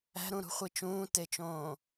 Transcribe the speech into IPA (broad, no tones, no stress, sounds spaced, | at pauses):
æ̤ ɾ ũ ɾ ṳ χʷ i t͡ʃ ũː t e t͡ʃ õː